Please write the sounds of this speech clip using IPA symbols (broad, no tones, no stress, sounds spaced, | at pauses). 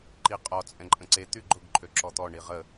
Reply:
ǃ i qʼ ɔ t͡sʼ ɛ̃ ǃʼ ə̃ ǀ e t̪ y ɡ͡ǃ ʊ ɡ ǃʰ ø ǁ ɔ t̪ ɔ ɳ i ʁ ə